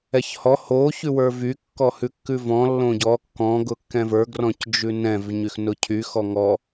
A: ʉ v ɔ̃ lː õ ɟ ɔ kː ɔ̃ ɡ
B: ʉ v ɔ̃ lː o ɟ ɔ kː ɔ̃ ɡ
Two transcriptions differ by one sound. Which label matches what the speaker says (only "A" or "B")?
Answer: A